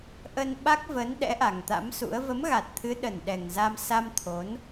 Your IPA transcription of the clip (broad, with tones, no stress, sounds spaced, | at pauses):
ʔ ə˧ n ɓ a˦˥ k̚ v ə˨˦ n ɗ ɛ̰˧˥ ʔ a˨˩ ŋ t̪ a̰˧˥ m s ṵ˧˥ ə̯ v ə˨˦ m ɣ a˨˩ t̚ t̪ʰ ɨ˨˦ ɗ ə˨˩ n ɗ ɛ˨˩ ŋ z a˧ m s a˧ m t̪ʰ o˨˦ n